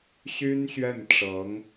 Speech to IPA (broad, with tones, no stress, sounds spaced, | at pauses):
ɕ y˥ n ɕ ɥ ɛ˥˩ n ʈ͡ʂ ɤ˧˥ ŋ